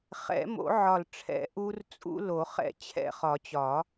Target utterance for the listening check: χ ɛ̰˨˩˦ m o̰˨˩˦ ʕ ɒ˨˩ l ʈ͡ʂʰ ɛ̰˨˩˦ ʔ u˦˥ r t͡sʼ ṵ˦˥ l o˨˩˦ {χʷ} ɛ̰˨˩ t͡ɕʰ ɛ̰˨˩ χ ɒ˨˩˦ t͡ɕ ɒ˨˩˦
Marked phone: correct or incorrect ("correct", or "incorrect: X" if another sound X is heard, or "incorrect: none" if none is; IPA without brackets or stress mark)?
incorrect: χ